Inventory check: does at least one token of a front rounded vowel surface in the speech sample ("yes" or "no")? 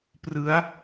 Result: no